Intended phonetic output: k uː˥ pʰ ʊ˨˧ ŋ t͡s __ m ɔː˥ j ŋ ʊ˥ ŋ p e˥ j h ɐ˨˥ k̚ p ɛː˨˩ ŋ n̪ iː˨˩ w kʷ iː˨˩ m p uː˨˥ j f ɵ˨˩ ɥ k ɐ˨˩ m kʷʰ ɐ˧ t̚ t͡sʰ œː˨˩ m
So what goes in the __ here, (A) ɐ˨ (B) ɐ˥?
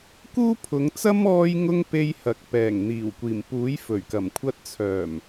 B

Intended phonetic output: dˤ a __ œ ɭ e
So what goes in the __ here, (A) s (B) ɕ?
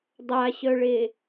B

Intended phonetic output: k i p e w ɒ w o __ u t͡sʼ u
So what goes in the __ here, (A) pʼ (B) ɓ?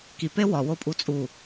A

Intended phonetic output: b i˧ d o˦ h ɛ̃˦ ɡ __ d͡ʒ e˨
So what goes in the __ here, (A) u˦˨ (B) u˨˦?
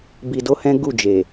A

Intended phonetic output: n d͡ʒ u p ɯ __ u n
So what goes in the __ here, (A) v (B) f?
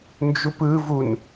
A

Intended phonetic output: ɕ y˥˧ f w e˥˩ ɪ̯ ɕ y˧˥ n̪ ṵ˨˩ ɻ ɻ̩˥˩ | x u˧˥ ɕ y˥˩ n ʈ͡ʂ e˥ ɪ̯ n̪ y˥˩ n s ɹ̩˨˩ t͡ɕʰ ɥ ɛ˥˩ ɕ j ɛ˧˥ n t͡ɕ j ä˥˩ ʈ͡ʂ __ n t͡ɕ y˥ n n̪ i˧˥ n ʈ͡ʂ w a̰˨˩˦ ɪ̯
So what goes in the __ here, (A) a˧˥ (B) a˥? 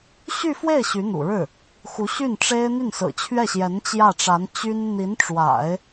A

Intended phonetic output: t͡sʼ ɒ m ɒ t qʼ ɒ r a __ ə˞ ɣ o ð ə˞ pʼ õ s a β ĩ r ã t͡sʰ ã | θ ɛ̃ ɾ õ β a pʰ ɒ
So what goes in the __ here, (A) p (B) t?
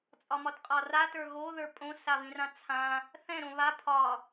B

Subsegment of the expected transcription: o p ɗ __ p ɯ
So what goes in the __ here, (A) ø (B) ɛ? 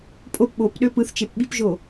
A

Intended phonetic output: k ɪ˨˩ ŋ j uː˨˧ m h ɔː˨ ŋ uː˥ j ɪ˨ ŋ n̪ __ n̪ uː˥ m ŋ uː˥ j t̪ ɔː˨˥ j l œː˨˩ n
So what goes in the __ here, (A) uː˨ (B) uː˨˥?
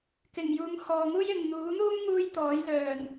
B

